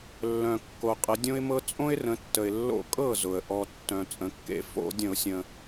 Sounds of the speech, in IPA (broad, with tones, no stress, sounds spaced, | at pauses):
lː œ̃˩ kː o˩ qʼ ə˩˧ dʲ õ˦ ɪ̯ m ɤ˦ t͡sʼ õ˦ ɪ̯ r ə̃˩˧ tː ə˩ ɪ̯ lː o̰˧˩˧ kʼ ɤ˥˨ z ʊ˩ ə̯ ʔ ɔ˩ tː œ̃˩ t͡sʼ ə̃˩˧ kː ḛ˧˩˧ f o̰˧˩˧ dʲ ə̃˧˩˧ ʊ̯ sʲ ə̃˩